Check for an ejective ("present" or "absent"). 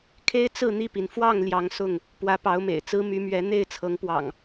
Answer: absent